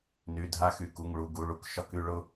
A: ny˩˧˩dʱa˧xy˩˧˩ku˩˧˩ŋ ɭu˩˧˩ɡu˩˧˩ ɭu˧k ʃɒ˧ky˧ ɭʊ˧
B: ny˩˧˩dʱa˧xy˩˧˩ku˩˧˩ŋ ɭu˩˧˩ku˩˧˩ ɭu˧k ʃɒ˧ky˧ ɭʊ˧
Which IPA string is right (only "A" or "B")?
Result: A